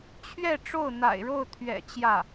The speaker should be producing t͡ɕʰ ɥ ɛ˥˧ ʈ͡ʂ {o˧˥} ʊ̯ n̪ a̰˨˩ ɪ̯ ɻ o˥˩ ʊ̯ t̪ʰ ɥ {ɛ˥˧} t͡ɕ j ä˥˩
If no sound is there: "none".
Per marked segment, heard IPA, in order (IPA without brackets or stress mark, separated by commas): o˥˩, ɛ̰˨˩